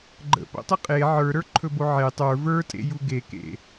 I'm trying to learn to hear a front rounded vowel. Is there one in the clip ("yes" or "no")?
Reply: no